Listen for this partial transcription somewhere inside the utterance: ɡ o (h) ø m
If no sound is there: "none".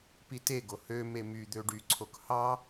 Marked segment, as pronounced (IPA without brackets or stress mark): h